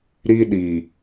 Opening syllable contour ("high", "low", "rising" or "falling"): high